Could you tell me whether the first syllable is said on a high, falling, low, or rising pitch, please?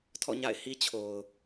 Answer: falling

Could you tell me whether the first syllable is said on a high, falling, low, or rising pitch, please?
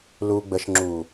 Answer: low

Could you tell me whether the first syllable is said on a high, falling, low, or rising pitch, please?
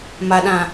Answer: low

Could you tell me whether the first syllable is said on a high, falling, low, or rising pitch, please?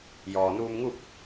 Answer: low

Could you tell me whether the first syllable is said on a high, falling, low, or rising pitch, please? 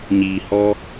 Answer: low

